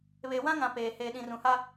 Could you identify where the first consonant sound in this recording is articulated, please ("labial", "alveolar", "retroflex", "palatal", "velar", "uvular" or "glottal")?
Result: labial